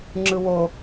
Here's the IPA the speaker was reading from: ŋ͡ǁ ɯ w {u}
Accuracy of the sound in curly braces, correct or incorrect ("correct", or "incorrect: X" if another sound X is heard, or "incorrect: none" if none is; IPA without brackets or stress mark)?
incorrect: o